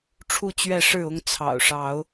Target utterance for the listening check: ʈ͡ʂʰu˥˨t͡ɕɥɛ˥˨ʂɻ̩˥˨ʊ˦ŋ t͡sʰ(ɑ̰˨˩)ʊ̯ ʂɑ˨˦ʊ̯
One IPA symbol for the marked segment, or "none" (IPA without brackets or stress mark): ɑ̰˨˩